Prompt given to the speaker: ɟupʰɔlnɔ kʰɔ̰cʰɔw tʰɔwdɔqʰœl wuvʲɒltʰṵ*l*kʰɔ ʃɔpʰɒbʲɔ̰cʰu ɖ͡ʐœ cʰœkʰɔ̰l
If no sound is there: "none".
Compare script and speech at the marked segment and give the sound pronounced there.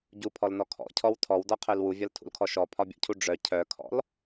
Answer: l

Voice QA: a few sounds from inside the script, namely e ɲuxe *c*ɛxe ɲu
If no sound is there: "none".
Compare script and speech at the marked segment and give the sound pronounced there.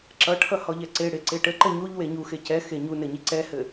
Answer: c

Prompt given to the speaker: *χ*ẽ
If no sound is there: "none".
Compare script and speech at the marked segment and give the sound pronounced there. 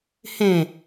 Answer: h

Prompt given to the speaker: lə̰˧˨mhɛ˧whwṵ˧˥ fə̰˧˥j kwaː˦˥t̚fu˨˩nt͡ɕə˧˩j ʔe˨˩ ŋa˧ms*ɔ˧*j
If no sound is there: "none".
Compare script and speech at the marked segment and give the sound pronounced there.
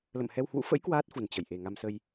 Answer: ə˧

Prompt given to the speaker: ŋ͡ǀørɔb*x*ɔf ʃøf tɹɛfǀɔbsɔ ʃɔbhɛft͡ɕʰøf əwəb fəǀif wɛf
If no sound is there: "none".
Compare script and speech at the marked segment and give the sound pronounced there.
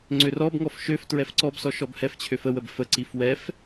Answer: ŋ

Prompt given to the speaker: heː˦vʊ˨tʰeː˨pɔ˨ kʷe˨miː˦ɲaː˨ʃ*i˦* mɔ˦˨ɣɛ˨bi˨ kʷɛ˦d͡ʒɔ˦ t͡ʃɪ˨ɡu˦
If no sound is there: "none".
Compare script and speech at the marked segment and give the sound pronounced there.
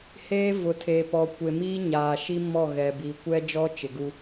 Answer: i˦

